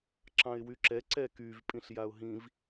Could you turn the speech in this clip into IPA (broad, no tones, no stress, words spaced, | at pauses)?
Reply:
ǁɑ̃ɪ̯wyǁɛ ǀɛkyv pʼĩɬjaʊ̯ɦĩv